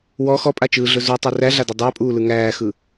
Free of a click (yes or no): yes